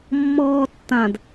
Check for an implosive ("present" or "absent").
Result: absent